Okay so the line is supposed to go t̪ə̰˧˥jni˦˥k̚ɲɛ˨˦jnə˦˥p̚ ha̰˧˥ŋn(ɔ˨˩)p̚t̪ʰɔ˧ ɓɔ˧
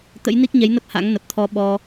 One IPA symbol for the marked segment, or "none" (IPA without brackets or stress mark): ə˨˩